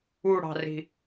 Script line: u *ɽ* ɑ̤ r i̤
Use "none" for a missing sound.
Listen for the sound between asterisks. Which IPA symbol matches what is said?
ɽ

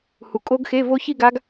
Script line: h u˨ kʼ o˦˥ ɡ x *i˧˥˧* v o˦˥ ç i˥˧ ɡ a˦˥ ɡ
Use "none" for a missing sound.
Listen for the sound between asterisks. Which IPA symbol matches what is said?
e˧˥˧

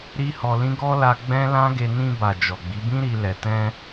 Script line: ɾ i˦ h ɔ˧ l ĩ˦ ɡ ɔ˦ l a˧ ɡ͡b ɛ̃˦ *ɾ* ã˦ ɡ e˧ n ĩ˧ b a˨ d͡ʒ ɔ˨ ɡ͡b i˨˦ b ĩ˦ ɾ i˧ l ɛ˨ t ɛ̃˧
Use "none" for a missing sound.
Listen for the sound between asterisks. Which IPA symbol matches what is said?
l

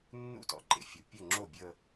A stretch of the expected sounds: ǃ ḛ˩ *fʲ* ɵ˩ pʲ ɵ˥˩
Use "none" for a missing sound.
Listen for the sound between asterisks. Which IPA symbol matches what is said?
fʲ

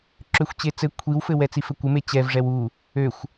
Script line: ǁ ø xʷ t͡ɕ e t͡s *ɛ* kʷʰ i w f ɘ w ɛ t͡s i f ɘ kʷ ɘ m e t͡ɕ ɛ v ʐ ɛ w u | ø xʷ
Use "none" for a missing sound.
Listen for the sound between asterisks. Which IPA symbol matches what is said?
ɘ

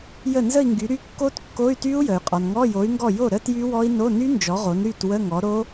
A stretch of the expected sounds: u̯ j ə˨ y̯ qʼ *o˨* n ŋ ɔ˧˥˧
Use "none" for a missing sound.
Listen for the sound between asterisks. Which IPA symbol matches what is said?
ɔ˨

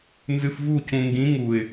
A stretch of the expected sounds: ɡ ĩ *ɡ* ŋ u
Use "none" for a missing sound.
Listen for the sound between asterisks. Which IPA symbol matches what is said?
none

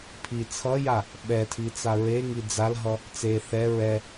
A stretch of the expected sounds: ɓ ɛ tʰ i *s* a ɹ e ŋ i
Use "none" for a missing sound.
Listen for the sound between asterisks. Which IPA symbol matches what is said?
t͡s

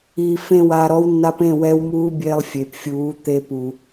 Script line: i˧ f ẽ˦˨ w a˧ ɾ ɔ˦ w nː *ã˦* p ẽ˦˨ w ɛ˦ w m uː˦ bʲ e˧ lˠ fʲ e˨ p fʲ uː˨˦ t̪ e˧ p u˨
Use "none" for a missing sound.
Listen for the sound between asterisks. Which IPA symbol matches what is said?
a˦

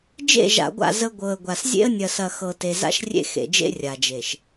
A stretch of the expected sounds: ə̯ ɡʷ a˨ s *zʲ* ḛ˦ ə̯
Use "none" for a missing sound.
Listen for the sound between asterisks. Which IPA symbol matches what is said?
zʲ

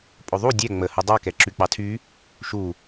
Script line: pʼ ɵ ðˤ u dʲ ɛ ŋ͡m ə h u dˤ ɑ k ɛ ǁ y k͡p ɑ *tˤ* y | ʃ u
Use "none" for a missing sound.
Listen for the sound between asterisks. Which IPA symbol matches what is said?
tʰ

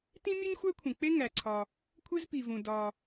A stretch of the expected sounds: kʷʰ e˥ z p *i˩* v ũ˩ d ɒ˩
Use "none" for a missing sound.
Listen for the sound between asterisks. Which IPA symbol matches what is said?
i˩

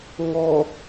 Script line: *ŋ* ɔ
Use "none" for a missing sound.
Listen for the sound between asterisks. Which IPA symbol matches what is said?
ŋ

